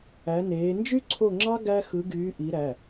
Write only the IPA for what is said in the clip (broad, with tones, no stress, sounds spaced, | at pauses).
æ˨˦ n eː˨˦ n d͡ʒ y˥ ǀʰ o˦˨ ŋ͡ǁ ɑ˥ ɡ æ˥ x ɯ˨˦ ɡ yː˨˦ ʔ i˨˦ ɾ æ˩˧˩